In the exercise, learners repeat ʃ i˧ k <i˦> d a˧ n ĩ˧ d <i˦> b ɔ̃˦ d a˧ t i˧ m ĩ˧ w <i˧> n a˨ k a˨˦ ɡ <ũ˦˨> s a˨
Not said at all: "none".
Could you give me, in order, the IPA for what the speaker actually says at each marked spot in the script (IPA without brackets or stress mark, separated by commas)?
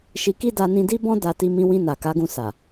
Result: i˦, i˦, ĩ˧, ũ˧